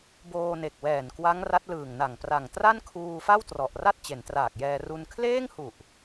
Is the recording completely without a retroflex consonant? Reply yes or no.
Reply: yes